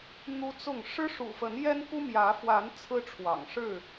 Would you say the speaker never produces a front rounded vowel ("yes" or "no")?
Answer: yes